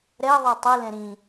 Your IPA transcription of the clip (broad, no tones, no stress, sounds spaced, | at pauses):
ɾ ɛ ðˤ ə˞ tˤ ɨ l ɛ̃ ɾ ĩ